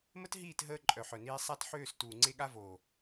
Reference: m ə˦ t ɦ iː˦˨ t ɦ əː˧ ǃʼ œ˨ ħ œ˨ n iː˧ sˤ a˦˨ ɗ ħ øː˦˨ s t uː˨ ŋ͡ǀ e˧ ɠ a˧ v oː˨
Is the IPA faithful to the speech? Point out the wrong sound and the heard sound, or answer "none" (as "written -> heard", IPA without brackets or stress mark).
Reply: ɗ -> t